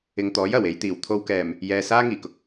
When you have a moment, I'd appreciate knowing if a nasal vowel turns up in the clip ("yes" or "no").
no